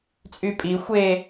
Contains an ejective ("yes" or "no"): yes